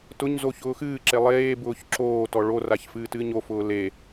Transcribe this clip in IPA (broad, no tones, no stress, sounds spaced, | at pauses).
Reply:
t ʊ ɲ z o ç ʊː x ɨː ǁ e lˠ eː b ʊː ç ǁ oː t ɔ ɭ o r a ç f ɨː t ɨː ɲ o f ʊː l e